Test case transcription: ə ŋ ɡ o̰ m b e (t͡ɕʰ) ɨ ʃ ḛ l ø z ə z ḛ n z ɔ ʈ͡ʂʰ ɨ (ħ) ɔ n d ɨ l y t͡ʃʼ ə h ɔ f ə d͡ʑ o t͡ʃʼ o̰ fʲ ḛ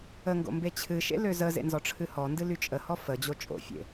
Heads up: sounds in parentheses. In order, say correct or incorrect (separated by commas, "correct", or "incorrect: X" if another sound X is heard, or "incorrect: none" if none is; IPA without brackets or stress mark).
correct, incorrect: h